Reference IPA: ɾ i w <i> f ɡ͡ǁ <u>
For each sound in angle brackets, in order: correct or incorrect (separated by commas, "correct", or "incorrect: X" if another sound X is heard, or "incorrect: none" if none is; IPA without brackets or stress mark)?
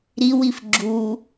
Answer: correct, correct